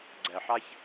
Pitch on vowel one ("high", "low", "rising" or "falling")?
low